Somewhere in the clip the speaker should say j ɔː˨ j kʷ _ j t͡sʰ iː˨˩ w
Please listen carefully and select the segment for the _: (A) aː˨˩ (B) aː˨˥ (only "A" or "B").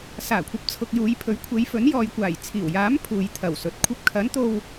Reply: A